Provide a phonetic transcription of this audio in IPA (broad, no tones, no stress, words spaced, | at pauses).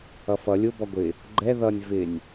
ʌfʌ lʲʊ bɔɡʷɪ | ɡ͡ǃɛ ðʌnʲ vɪnʲ